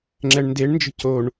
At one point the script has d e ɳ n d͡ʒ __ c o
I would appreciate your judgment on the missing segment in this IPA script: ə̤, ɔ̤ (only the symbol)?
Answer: ə̤